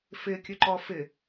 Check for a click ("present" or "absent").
present